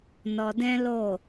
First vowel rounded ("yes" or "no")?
yes